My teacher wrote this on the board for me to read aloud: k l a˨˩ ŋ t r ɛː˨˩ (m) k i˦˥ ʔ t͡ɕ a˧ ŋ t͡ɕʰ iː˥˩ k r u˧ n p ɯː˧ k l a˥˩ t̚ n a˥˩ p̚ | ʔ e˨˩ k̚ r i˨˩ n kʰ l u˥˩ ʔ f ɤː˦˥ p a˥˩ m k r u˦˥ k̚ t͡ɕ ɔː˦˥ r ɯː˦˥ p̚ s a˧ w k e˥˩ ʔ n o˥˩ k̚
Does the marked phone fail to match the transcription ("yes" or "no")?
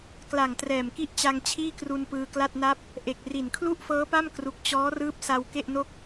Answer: no